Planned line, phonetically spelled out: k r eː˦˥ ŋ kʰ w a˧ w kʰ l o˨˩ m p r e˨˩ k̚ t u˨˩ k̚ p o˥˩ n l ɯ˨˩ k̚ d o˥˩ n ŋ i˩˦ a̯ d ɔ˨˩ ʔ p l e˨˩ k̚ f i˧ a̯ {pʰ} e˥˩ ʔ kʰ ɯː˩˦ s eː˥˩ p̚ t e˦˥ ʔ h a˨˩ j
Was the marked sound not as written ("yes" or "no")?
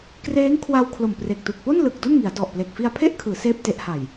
no